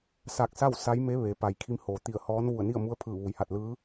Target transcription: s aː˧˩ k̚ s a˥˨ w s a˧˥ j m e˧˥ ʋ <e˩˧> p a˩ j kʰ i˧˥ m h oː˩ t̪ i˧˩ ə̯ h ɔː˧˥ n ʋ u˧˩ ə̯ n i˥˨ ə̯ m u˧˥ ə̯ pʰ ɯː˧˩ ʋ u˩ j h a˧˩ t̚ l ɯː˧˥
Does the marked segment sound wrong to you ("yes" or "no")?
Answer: no